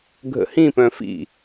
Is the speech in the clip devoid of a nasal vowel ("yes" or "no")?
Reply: no